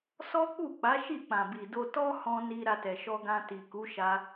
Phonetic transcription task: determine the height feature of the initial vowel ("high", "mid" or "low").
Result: mid